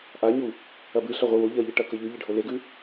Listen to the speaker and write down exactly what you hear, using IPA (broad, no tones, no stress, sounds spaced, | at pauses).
ʔ a ɲ u | ɐ b ɨ ɬ ɐ ʁʷ ɨ w o ʎ ɐ ʎ ɨ ʈ ɐ k ɵ ʎ ʉ ʎ e ɖʱ o l e ɡ ʉ